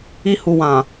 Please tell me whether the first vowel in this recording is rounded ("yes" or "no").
no